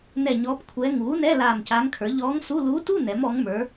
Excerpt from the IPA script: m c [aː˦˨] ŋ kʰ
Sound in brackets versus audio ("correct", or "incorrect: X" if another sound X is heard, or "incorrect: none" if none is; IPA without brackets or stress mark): incorrect: aː˧˥